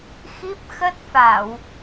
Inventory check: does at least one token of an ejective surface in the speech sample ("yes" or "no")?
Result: no